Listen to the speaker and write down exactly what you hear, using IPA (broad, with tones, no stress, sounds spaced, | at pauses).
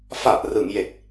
f a˨˩ ʔ r ɯ˩˦ ŋ j e˨˩ k̚